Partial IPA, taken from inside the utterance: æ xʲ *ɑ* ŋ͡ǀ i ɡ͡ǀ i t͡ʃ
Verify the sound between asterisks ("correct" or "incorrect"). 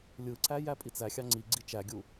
correct